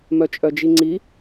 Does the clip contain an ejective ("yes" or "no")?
yes